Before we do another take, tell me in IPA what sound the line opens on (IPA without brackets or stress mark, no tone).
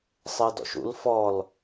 sˤ